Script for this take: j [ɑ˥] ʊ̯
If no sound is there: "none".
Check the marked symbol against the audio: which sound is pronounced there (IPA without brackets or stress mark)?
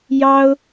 ɑ˥